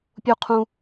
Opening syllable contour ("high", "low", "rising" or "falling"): high